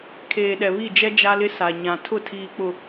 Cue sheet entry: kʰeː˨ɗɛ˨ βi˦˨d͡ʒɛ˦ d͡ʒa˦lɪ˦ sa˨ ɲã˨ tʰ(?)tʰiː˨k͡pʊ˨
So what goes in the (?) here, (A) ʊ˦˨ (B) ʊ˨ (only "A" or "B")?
A